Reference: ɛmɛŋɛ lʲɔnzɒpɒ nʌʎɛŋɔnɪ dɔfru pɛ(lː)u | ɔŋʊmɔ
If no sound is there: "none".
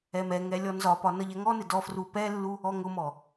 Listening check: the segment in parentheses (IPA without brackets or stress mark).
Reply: lː